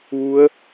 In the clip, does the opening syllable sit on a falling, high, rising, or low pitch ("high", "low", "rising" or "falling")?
rising